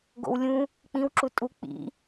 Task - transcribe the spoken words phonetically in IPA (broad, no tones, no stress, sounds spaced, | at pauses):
ɡ o̰ w lʲ ũ | k͡p ĩ w ǁ u tʼ u k͡p ḭ